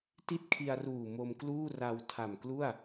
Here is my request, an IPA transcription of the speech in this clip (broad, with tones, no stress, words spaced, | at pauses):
ti˥˩t̚kʰi˧a̯ruː˨˩ mo˧mkluː˥˩ra˧w tʰa˨˩mklu˥˩a̯